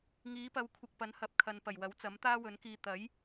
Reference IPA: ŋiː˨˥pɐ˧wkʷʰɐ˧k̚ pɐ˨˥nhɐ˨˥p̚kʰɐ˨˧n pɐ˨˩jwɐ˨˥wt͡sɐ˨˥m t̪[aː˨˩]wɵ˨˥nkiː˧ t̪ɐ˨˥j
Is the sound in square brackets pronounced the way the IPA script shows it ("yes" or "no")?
no